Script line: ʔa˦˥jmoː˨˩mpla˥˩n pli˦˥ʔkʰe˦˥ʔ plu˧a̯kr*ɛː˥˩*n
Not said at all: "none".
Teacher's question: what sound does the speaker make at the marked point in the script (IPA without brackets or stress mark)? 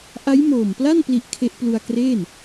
eː˥˩